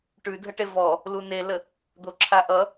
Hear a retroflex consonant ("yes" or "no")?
yes